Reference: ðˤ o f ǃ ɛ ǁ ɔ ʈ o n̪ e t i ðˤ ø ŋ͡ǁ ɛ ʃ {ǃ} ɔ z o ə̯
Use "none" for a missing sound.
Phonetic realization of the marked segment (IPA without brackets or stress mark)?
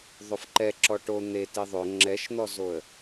n̪